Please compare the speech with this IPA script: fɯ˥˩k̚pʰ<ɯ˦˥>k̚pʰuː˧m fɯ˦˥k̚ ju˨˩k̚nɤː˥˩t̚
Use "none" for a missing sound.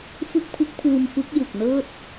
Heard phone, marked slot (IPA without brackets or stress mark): ɯ˦˥